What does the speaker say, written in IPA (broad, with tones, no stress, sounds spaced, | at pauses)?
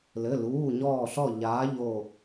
l ɘ˩˧˩ l uː˩˧˩ ɲ ɔː˧˩ ɬ ɔ˧˩ ʎ aː˨˥ ʎ o˧˩